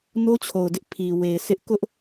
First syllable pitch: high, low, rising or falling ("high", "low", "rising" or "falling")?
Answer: high